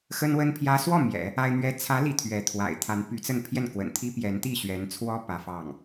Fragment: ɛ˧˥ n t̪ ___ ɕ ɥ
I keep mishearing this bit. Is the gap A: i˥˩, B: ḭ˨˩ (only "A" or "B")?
A